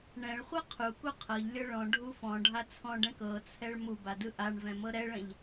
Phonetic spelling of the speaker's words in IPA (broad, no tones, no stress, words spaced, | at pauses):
ɳɛ̃ɭχʷɤ qʰuku qʰɤʎlʲɤ ɭɔ̃ɖʱu fɔ̃ ɖʱat͡sʰɔ̃ɖɛ̃k ɤt͡sʰɛɭ muba dɯʔaɳvɛ̃ mɤɾɛɭɛ̃ʎ